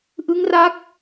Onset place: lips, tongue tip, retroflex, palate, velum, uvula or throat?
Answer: throat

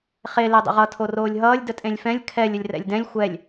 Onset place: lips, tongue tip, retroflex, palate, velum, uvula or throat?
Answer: uvula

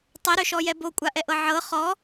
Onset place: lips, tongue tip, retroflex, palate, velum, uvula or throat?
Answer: tongue tip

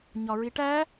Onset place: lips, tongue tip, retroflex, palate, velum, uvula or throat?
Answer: palate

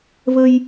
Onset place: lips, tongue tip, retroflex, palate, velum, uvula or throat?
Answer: lips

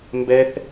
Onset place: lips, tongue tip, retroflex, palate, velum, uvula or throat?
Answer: lips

